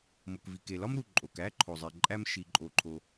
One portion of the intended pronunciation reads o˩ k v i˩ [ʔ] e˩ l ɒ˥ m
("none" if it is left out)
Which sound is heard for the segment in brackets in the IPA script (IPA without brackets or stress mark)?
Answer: k